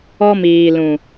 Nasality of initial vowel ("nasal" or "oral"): oral